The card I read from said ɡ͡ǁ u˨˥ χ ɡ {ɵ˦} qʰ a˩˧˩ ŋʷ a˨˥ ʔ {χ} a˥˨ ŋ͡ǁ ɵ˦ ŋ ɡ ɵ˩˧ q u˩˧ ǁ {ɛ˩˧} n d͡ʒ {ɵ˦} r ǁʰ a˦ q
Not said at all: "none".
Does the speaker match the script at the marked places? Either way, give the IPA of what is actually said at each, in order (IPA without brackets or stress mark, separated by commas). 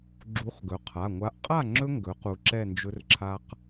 ɵ˩˧, qʼ, ɛ˥˨, ɵ˦